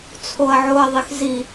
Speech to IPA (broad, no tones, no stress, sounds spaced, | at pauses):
t͡sʰ o ɐ̯ ʕ o ɐ̯ ðˤ e x z i